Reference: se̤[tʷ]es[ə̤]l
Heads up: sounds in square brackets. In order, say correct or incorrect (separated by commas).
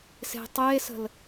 incorrect, correct